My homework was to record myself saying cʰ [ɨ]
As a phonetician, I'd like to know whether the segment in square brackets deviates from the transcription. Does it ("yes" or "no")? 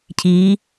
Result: yes